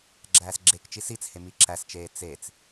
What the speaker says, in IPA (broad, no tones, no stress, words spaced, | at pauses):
ɡ͡ǁæːsɡ͡ǁekt͡ʃi sit͡she miǁæst͡ʃeː t͡set͡s